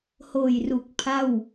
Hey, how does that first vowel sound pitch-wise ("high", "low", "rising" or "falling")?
low